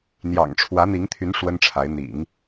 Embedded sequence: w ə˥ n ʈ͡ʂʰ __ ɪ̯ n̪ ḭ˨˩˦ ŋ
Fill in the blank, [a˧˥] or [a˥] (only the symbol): a˧˥